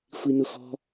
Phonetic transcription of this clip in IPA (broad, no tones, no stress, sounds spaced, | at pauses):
xʷ i n ʊ x ɔ̤